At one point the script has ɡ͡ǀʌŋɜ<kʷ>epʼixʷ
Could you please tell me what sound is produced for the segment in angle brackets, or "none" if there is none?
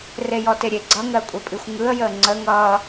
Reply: kʷʼ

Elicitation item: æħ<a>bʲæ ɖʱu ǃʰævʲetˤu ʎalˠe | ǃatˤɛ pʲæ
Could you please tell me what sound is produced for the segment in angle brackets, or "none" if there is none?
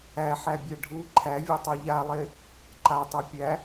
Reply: æ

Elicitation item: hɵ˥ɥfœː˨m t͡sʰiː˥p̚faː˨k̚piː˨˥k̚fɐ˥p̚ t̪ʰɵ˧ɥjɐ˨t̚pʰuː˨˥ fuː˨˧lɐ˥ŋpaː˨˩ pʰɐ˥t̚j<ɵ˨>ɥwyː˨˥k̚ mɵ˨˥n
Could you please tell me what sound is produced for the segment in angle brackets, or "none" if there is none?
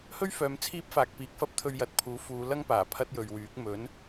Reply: ɵ˨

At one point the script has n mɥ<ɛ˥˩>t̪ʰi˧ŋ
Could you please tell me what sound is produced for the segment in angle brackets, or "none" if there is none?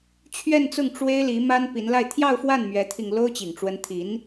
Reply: ɛ˧˥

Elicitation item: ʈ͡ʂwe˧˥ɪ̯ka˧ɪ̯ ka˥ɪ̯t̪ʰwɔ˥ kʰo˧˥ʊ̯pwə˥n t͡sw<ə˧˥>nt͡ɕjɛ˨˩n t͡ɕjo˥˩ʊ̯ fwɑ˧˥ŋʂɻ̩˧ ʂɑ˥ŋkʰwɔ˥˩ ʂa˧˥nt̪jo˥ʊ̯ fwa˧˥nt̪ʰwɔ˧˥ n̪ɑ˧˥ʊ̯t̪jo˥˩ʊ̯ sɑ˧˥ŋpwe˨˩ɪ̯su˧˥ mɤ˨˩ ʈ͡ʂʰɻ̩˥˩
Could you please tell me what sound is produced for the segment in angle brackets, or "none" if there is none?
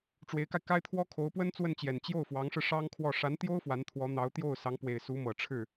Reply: ə˥˩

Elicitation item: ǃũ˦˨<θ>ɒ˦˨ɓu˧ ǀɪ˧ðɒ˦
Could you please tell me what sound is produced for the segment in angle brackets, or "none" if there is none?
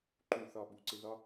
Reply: θ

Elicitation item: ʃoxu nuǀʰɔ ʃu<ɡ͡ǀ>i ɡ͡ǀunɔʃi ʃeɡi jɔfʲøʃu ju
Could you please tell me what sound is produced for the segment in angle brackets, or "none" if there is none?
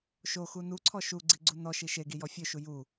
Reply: ɡ͡ǀ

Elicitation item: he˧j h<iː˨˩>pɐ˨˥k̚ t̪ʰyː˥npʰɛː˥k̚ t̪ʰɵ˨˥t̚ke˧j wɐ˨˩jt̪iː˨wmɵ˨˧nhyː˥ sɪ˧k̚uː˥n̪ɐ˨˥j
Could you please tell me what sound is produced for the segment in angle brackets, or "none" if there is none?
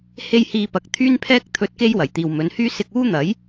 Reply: iː˧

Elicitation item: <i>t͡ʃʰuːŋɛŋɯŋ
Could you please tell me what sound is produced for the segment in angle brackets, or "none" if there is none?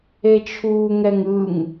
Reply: e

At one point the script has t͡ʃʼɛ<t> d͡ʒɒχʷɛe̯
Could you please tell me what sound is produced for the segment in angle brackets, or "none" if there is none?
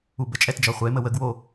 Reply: t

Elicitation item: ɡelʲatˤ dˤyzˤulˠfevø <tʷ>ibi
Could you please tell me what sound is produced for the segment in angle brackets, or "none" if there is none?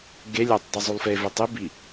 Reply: tˤ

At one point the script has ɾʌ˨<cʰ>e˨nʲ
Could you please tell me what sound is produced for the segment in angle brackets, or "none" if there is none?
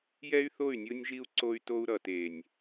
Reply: t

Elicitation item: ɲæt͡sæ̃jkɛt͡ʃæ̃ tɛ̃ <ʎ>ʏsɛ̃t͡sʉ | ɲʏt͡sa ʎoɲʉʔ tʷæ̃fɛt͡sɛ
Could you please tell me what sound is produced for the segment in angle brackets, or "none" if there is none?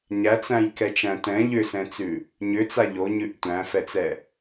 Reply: ʎ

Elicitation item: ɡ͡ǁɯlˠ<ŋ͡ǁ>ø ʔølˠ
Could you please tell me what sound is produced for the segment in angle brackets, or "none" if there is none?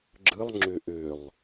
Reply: ŋ͡ǁ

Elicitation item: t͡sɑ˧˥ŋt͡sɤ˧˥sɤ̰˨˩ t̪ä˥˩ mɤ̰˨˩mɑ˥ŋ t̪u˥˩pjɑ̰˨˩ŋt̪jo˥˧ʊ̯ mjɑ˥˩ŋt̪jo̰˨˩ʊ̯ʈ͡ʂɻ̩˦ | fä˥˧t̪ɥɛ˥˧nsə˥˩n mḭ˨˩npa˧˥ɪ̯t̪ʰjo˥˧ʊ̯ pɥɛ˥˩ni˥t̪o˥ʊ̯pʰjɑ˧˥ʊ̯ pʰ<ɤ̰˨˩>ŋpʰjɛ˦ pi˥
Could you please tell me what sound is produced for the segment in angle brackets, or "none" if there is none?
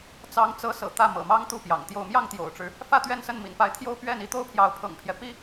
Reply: ɤ̰˨˩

